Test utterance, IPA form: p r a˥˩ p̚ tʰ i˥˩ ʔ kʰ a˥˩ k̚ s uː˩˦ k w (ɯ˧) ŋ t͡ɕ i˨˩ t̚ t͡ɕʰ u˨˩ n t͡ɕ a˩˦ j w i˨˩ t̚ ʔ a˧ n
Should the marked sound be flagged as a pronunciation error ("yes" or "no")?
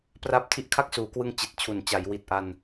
no